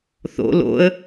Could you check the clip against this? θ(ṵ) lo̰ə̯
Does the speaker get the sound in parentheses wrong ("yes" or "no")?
yes